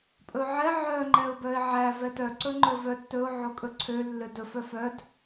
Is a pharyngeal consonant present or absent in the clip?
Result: present